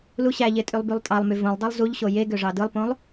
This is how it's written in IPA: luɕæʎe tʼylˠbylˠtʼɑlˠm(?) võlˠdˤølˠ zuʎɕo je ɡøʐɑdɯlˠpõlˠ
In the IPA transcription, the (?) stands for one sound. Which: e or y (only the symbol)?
y